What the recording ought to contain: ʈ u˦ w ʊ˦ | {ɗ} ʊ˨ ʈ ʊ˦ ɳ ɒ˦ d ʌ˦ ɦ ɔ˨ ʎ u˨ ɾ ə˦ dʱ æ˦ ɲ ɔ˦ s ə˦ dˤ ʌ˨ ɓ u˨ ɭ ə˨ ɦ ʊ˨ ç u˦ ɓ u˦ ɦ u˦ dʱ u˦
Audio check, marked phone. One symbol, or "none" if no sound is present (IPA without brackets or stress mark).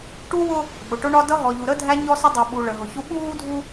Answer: ɓ